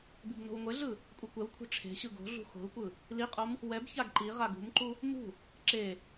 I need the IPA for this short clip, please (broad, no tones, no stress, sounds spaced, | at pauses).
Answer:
b i b n o̤ w ŋʷ e ɮ ɯ | kʷʼ ɛ kʷ ɛ w kʷʰ e̤ ʈ͡ʂʰ e̤ ɕ ɯ ɡ o̤ ɮ ṳ x o̤ l kʷ ɯ | l i qʼ o m | w ɛ b ç a ɡ ǃ i ʁ a ɡ ṳ m ǃ u | m ṳ | ǁ e